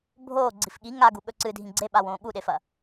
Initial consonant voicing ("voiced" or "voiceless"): voiced